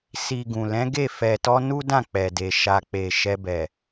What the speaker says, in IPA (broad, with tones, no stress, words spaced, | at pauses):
si˨ ɡũ˨lɛ̃˨˦ɡe˦˨ fɛ˨tɔ˧ nu˦dã˦˨k͡pɛ˨de˨ ʃa˨k͡pe˨ ʃɛ˧bɛ˨